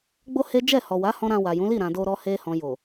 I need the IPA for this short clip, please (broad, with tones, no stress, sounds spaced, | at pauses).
ɡ͡b o˦ h e˦ d͡ʒ ɛ˦˨ h ɔ˨ w a˨˦ h ɔ̃˧ ɾ ã˧ w a˨ j ũ˨˦ l i˦˨ ɾ ã˨ d o˧ ɾ ɔ˧ h e˧ h ɔ̃˨ j o˨